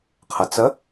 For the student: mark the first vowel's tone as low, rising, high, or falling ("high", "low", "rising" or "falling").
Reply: low